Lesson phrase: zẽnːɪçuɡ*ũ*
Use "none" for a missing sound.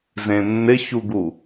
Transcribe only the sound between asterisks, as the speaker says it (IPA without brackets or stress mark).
u